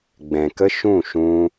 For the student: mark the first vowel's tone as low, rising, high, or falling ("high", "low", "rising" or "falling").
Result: low